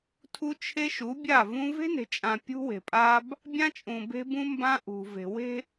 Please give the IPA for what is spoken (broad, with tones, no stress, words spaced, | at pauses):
tʰu˦t͡ʃʰe˦ʃu˨˦ bʲa˦˨vũ˦ ve̤˦ne̤˨t͡ʃʼã˨ pʲṳ˦we̤˨pʼa˦b | bʲã˦t͡ʃʼũ˨be̤˦ bũ˦mbã˦ ʔṳ˨ve̤˨ we̤˦